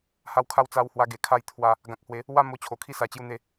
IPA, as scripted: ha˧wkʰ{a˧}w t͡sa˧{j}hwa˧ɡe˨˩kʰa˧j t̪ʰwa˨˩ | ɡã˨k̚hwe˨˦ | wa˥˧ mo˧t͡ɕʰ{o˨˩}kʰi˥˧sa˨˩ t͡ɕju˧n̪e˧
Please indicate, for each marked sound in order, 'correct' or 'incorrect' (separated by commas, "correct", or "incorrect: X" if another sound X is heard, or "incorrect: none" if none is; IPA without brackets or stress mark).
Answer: correct, incorrect: w, correct